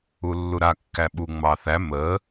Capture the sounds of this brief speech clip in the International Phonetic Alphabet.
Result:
u lː u ɾ a kː æ ɓ u ŋ͡m ɑ θ æ m ə

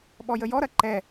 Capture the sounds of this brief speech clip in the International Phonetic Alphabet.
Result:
ɓ ɔ j ə j ɔ ɾ ɐ ǃ ɛ

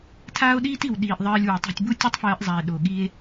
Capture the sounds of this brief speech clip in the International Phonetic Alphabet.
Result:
tʰ aː˦ o̯ ɗ iː˦ t i˨ w ɗ iː˨ ʔ ðˤ ɜː˧ lʲ w ɛ˨ tˤ ɛ̤˧ tʲ b u˦ tʲ u˦ tˤ f ɜː˧ ʔ zˤ a˨ e̯ ɗ o˨ ɠ i˦ e̯

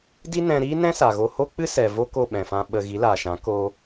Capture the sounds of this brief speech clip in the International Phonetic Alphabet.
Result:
d i˦ n ɛ̃˧ ɾ iː˦ n ɛ̃˦ s a˨ ɣ o˧ h o˦ k͡p ɨ˦ s ɛ˨ v o˦ k o˦˨ ɓ ɛ̃˨ f ã˧ ɓ ə˧ ɣ i˨˦ l aː˨ ʃ ã˨˦ k oː˦

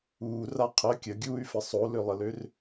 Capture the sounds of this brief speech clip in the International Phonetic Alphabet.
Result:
uː r a qʰ ə kʲ ə ɡʲ uː y̯ f ə sˤ o l ø lˠ ə l ø r

